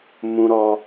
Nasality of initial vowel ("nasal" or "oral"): nasal